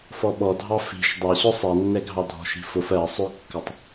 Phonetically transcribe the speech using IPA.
f ɔ ɓ ɔ dʱ ɑ f i̤ ʃ dˤ ɑ ɕ ʊ sˤ ɛ nː ɛ ɡʱ ɑ dʱ ɔ̤ ʃ i̤ f ʊ f ɜ sˤ ø kː ə tˤ

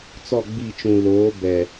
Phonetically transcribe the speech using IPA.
t͡s ɔ˦˨ ɡ͡b i˦˨ t͡ʃ ũ˨ l oː˨˦ b ɛ˨

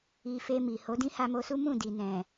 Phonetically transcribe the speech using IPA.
i˧ f e˧ m i˨ h o˨˦ d ĩ˦ h a˧ m o˧ s u˦ m ũ˦˨ d i˨ n ɛ̃˨

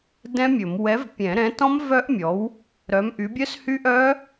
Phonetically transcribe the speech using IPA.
d ɛ̃˦˥ mʲ ɵ˨˩˦ m w ɛ˨˥ v pʲ ɛ̃˨˩˦ ɾ ɛ̃˨˥ t ɔ̃˦˥ m v œ˦˥ ʔ mʲ ɔ˨˥ w | ɾ œ˨˥ m ʔ y˨˥ bʲ œ˦˥ s h y˦˥ ʔ œ˦˥

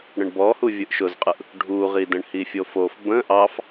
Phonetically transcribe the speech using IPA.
ɽ ə̃ ɳ b ɔ h u vʲ ɯ ʔ ʃ ʊ z qʼ ɯ ʔ | ɖʱ u ʁ i d ə̃ ɳ h i fʲ o f o f b ə̃ ʔ ɑ f

